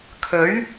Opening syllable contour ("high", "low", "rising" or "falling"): rising